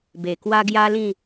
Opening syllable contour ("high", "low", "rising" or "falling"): low